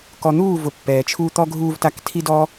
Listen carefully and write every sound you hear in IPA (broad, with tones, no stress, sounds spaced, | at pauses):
k ɔ˨ n̪ uː˦˨ v ʊ˨ pː ɛː˨ t͡ʃʰ uː˦ t̪ ɔ˦ ɡʱ uː˧ v t a˧ k tʰ i˦ d ɔ˦